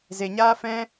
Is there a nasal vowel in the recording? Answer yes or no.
yes